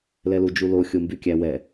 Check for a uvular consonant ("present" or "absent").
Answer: absent